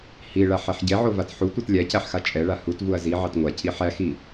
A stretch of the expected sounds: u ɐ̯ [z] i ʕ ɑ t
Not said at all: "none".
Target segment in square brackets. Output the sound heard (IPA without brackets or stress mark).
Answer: z